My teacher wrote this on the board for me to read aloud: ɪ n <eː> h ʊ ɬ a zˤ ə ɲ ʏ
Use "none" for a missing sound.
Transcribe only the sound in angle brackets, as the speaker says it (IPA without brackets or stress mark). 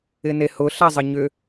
e